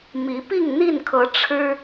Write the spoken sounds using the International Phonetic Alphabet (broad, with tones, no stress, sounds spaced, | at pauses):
m i˨˦ p i˥˨ ŋ n̪ i˥˨ n kʰ ɤ˨˦ ʈ͡ʂʰ ɻ̩˦